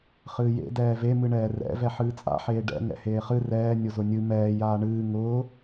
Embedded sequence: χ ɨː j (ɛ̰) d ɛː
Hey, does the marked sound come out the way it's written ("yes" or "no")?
no